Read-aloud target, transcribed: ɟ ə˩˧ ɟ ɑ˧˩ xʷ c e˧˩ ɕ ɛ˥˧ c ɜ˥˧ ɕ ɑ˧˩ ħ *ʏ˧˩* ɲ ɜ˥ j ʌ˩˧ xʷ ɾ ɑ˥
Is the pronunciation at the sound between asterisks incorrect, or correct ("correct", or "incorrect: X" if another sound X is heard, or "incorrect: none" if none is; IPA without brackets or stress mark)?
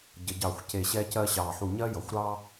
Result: incorrect: u˧˩